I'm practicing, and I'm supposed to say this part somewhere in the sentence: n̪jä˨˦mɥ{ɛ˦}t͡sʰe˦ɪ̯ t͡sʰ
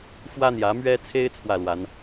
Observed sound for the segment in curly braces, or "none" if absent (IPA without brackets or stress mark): ɛ˦